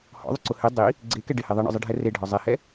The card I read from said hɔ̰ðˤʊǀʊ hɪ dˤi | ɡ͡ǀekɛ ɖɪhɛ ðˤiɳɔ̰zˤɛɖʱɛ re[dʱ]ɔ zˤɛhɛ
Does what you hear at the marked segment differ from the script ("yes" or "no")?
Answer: yes